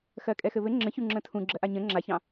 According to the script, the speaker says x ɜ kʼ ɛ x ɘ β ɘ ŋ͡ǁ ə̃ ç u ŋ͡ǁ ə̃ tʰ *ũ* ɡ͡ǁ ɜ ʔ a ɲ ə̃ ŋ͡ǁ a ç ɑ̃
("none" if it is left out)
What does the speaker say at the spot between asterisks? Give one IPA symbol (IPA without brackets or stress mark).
ũ